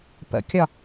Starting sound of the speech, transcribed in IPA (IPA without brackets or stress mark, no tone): p